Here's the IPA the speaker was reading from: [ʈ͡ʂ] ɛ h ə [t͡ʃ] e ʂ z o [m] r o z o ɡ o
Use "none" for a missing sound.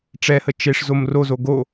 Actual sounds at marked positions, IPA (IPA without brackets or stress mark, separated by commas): ʈ͡ʂ, t͡ʃ, m